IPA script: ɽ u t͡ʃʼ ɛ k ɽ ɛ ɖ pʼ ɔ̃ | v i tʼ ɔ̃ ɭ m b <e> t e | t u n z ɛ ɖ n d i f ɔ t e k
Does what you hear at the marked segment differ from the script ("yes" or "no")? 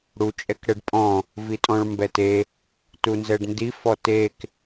yes